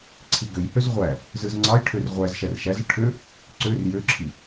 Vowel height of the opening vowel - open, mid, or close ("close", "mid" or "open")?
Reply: close